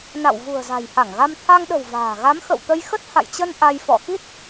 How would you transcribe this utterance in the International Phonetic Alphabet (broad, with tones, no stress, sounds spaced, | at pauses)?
n a̰˧˨ w v ṳ˨˩ ə̯ z a̤˨˩ j h a˧˩ ŋ ɣ a˧ m t̪ʰ a˧ ŋ ɗ ə̤˨˩ w v a̤ː˨˩ ɣ a˨˦ m x ə̰˧˨ w t̪ ə˧ j x ə˦˥ t̚ h a̰˧˨ j t͡ɕ ə˧ n ʔ a˧ j f ɔ̰˧˨ x i˦˥ t̚